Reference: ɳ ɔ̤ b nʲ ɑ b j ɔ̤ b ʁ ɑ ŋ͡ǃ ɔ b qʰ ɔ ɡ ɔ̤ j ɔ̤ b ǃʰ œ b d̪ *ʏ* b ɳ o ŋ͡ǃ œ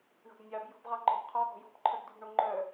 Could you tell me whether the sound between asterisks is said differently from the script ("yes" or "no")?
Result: yes